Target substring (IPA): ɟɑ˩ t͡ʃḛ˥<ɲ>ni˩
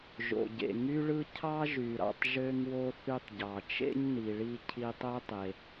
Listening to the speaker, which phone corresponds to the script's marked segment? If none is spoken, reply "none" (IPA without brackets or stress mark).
ɲ